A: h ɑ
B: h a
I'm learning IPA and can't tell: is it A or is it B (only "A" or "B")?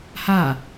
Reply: B